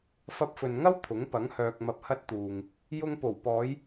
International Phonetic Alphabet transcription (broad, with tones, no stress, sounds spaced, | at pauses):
f ɐ˧ p̚ f ɵ˨ n ŋ ɐ˥ w t̪ʰ ʊ˨˥ ŋ p ɐ˨˥ ŋ h œː˧ k̚ m ɐ˧ p̚ h ɐ˥ t̚ t̪ uː˨ ŋ | j ʊ˧ ŋ p o˨˩ w p ɔː˨˧ j